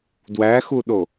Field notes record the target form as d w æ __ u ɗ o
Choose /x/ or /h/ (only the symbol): x